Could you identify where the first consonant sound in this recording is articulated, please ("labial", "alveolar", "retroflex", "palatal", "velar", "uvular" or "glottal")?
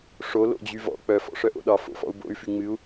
retroflex